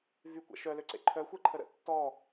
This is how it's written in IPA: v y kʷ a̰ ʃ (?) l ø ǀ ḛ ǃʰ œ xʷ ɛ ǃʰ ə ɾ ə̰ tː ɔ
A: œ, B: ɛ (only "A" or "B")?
A